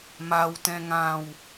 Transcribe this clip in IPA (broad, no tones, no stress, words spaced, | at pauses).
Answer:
maw tɛ̃ŋãw